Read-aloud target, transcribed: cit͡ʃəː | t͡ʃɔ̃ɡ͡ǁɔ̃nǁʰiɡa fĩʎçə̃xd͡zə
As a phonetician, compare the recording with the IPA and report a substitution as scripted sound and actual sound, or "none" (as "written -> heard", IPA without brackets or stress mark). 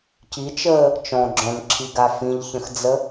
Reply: none